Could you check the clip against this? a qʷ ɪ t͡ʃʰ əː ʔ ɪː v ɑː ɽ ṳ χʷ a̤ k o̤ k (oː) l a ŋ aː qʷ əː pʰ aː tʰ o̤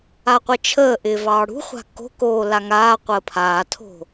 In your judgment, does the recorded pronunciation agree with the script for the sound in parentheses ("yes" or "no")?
yes